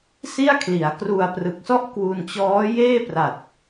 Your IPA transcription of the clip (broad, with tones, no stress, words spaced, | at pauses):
si˥˩a̯kʰli˩˦a̯ kru˧a̯prɯ˨˩k̚sɔ˥˩ʔ kwu˧nt͡ɕɔː˦˥jeː˥˩pra˨˩t̚